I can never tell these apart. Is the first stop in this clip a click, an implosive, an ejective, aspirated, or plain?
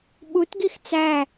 implosive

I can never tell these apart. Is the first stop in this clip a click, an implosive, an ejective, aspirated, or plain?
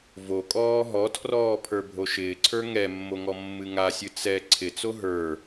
ejective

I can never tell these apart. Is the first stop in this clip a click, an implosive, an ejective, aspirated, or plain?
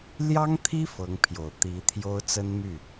aspirated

